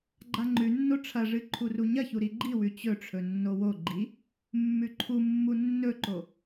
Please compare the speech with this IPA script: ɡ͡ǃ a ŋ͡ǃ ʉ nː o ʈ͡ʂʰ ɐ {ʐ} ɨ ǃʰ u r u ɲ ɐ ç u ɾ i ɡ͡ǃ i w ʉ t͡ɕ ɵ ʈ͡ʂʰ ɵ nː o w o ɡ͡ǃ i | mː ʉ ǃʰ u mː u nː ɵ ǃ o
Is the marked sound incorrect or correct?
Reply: correct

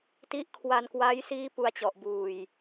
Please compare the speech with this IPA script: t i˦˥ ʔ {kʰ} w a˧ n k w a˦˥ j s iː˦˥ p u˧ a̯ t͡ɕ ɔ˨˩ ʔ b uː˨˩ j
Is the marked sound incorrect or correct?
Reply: correct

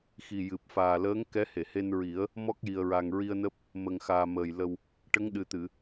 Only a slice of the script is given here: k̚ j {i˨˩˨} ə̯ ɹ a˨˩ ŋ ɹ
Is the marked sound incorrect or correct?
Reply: incorrect: i˨˩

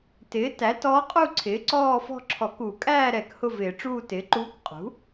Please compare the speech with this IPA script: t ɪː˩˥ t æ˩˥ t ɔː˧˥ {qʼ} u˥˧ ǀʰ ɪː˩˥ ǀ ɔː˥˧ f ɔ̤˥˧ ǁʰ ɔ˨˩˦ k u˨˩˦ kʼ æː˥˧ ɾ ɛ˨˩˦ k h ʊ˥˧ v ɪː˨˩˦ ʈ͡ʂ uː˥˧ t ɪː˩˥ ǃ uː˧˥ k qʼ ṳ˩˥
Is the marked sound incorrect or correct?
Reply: correct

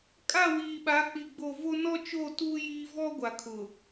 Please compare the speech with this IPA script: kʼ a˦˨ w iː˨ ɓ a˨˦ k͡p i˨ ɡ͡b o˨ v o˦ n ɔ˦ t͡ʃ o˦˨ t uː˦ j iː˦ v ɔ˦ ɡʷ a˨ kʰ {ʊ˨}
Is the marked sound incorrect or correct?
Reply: correct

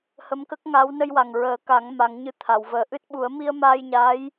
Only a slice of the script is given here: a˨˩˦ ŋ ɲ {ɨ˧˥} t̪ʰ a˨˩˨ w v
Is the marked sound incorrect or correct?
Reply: correct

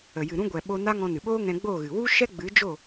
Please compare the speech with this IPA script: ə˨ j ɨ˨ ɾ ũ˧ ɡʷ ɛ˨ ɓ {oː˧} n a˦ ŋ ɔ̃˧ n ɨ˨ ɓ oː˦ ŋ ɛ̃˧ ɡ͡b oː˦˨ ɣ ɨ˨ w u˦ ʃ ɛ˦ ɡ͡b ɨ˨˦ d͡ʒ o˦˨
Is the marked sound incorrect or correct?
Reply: incorrect: o˧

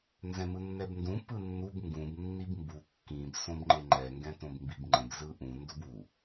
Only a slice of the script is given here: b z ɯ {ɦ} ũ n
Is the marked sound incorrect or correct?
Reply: incorrect: ʔ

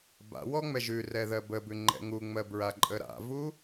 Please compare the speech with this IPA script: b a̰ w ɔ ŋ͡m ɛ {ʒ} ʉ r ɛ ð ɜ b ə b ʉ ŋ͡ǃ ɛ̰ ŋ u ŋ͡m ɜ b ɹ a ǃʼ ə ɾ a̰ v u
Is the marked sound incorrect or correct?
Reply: correct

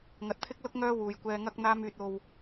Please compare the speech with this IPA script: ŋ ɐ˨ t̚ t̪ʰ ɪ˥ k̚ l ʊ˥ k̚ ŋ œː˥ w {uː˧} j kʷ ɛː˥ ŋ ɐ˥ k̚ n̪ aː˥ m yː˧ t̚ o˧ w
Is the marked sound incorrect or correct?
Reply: correct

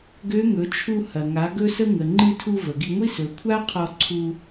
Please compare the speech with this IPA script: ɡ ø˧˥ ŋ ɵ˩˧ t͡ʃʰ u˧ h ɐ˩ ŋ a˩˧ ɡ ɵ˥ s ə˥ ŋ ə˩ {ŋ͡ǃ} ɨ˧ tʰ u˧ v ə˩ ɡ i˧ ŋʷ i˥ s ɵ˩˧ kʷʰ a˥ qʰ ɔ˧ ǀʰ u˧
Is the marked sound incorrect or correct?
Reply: correct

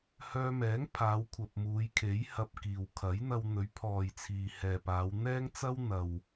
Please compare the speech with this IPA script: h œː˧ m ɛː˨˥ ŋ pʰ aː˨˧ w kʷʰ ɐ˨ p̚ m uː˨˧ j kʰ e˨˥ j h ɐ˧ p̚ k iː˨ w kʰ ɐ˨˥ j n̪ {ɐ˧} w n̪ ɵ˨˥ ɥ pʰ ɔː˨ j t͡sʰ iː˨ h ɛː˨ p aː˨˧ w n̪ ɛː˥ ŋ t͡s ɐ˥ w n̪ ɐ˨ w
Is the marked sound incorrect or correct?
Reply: correct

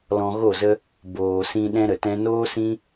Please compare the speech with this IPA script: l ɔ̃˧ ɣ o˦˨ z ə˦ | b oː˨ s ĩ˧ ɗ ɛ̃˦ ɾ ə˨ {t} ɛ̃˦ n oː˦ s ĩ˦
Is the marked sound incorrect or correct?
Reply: correct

